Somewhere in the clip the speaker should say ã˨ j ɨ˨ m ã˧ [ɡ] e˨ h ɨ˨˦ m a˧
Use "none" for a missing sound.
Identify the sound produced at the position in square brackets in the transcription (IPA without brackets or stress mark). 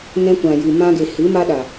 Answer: ɡ